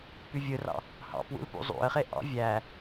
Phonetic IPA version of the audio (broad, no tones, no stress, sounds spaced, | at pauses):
p y vʲ ɯ r ɑ̰ | h ɑ̰ p w ṵ l p ṵ zˤ ṵ ə̯ χ e ʔ ɑ̰ vʲ æ